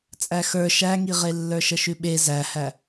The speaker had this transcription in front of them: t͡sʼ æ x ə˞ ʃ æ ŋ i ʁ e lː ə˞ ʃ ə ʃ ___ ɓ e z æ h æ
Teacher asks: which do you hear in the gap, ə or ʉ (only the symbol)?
ʉ